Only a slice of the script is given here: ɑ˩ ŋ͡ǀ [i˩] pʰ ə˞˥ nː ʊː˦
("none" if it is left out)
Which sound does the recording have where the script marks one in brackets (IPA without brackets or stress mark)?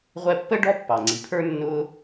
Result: i˩